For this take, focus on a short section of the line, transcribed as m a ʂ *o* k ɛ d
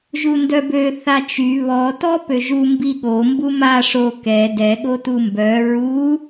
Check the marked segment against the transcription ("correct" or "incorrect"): correct